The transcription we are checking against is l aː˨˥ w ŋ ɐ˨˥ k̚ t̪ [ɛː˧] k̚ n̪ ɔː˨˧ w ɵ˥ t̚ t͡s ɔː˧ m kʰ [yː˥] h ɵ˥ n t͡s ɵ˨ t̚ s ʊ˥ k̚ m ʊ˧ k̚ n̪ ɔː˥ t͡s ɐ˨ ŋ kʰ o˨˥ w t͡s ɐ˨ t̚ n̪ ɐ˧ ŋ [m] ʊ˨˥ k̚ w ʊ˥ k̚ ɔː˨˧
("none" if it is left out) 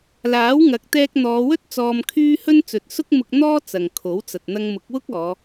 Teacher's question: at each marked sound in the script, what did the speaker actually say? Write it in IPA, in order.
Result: ɛː˧, yː˥, m

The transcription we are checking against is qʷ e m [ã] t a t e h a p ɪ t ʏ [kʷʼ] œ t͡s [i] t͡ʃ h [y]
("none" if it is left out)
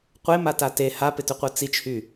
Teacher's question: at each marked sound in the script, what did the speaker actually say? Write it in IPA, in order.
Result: a, qʷ, i, y

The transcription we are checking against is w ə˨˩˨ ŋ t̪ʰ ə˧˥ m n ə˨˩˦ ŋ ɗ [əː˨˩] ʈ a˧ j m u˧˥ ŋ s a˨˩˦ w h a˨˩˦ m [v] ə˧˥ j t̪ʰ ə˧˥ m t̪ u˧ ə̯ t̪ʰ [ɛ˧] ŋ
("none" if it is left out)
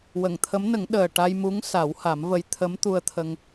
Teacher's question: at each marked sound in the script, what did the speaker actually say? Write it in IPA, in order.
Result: əː˨˩, v, ə˧

